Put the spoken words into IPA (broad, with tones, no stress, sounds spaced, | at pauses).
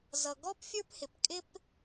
z ʌ˩ ɡ ɔ˥ p fʲ ə˞˥ p h ɪ˩ p kʼ ɪ˥ p